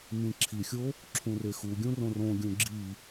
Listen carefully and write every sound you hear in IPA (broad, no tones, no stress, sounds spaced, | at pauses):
m ĩ ǁʰ i xʲ o | ǁʰ ũ r e x u ɡʲ ũ r õ r õ ɡʲ ũ ɡ͡ǁ i